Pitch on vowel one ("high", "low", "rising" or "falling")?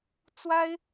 high